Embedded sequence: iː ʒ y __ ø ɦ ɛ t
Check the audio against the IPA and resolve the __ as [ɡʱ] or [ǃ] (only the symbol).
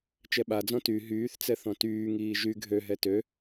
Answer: ɡʱ